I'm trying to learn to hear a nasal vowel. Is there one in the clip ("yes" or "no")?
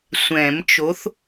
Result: yes